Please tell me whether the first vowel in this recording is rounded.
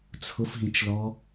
yes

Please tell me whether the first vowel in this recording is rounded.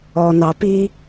yes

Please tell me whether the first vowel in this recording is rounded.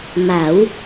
no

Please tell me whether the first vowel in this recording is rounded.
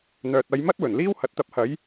yes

